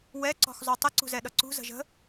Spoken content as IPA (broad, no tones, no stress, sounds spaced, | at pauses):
w ɛ ǀ ɔ̤ x zˤ u tˤ ə ǀ ṳ z ɛ ɗ ʌ ǀ ṳ z ə̤ ʒ ə̤